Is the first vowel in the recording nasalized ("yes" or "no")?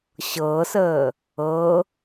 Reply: no